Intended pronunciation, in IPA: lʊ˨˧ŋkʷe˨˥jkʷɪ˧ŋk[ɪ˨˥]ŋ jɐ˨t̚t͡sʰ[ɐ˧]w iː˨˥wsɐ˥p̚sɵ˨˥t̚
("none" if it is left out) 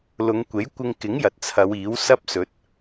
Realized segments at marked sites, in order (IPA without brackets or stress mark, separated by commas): ɪ˨˥, ɐ˨˧